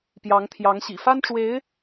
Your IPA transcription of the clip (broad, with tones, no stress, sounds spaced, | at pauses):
p j ɑ˧˥ ŋ t̪ʰ j ɑ˧˥ ŋ ɕ ḭ˨˩ f a˥ n ʈ͡ʂ w e˧˥ ɪ̯